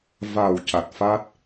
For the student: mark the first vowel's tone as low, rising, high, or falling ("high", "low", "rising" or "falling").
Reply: low